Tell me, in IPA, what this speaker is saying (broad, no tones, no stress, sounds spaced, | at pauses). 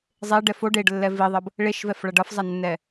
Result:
zˤ e ɖ ɛ f o ɖ e ɖ lː ɛ v i ðˤ ʌ b | ɭ e ʃ v ɛ f ɭ ʌ ɖ ʌ f zˤ a nː ɛ